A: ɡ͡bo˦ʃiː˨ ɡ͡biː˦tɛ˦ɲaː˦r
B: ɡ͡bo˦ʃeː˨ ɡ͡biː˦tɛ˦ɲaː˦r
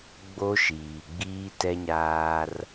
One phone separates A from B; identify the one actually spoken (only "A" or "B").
A